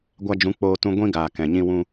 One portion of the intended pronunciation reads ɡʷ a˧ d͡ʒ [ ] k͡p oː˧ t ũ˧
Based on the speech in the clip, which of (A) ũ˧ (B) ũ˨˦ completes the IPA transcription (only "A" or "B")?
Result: B